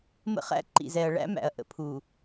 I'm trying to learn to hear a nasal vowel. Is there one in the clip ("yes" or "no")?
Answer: no